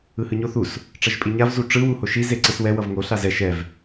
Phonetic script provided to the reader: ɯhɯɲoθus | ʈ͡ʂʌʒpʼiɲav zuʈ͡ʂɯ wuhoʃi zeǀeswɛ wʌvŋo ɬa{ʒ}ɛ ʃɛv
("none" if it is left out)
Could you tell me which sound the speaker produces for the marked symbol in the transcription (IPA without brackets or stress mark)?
z